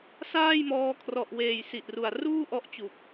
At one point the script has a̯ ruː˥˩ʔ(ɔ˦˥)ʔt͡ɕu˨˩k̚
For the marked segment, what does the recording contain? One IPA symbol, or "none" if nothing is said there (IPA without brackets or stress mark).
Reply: ɔ˦˥